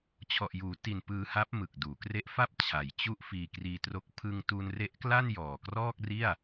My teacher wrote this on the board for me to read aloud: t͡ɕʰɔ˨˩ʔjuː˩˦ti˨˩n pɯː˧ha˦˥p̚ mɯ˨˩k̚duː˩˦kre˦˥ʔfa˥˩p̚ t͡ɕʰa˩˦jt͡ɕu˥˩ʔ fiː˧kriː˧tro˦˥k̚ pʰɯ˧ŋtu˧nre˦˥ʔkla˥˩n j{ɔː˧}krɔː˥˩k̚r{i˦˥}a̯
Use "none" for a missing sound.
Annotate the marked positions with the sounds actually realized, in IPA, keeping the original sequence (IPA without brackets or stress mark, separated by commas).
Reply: ɔː˨˩, i˥˩